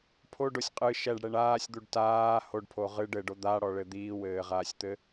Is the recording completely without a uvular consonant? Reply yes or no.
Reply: no